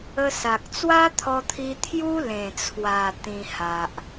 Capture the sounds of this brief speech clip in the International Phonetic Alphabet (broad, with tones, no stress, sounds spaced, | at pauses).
ə˧ s a˨ k̚ t͡s w a˦ t̪ʰ ɔ˧ t̪ʰ i˧ t̪ʰ j u˦ l ẽ˨˩ t͡sʰ w a˨˩ t̪ ĩ˨˩ h a˨ ʔ